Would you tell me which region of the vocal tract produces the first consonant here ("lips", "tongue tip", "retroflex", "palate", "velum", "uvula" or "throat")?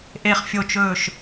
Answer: throat